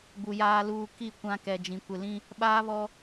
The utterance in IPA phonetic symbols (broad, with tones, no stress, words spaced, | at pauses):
ɡ͡bu˨ jaː˨luː˨ ki˦˨kʷã˦ kɛ˨d͡ʒĩ˨ kʷɪ˨lĩ˦ | ɓaː˦βɔ˦